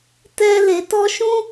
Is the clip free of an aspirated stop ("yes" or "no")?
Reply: yes